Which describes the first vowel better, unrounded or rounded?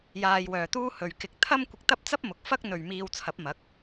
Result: unrounded